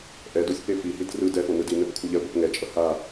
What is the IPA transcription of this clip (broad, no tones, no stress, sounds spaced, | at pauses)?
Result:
ʔ ɛ d o sʲ p e f i h i d r ɯ d ɛ f o n ɯ d i n ɛ p kʷʰ ʌ ʎ ɛ ɡʷ ʌ p ŋ ɛ t͡ʃʼ ʌ h a